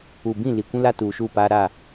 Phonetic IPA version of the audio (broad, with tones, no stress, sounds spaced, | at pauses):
uː˨ b ĩ˦˨ l i˨ kʷ ũ˦ l a˦ t uː˨ ʃ uː˦˨ p aː˦ ɾ a˦˨